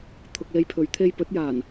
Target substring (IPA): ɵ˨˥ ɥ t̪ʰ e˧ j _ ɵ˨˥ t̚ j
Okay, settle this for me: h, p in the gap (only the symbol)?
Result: p